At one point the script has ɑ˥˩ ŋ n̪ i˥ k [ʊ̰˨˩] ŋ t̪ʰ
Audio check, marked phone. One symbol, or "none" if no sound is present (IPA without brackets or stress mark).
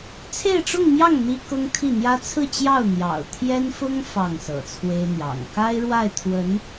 ʊ˥